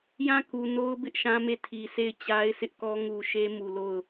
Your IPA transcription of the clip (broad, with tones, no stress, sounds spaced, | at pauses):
j ã˦˨ k u˨ n o˦ ʊ̯ b ɪ˦ ʔ ʃ ã˦ m e˦˨ tʰ i˨ sʰ e˦˨ ɪ̯ t͡ɕ a˦ ɪ̯ sʰ ɪ˦ ʔ k ɔ˦ ŋ u˨ ʃ e˦ m u˨ l o˦˨ ʊ̯